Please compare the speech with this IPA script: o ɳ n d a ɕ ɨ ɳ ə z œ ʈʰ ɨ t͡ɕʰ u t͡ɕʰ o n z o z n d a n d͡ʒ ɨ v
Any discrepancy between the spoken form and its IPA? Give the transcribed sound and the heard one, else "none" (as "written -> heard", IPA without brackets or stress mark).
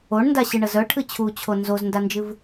none